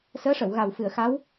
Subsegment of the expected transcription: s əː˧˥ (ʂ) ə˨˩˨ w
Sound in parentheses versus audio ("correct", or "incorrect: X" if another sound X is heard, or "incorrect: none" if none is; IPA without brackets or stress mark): correct